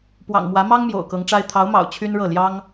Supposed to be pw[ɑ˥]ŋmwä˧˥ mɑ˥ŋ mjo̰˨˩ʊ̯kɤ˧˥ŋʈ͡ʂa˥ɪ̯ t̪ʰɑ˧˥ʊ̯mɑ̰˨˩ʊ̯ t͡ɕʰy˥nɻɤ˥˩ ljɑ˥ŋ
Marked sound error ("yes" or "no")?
yes